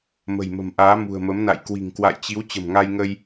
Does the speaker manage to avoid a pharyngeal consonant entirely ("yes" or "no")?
yes